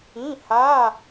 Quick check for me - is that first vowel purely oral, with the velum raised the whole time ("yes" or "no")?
no